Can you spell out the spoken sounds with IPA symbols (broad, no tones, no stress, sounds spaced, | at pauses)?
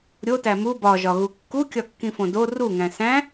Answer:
ɾʲ o t æ m u b ɒ ʒ ɒ ɣ u kː u kʲ ɒ kː ĩ f õ d o r u ŋ æ̃ s æ̃